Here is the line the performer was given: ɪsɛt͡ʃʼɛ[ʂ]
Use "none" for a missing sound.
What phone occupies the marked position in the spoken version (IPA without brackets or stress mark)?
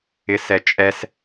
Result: s